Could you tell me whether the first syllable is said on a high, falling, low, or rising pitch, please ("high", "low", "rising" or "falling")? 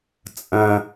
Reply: high